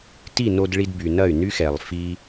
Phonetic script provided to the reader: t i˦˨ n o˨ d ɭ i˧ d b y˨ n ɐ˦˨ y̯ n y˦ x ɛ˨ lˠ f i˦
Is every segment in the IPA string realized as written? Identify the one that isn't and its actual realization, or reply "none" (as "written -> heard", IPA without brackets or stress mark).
o˨ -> o˧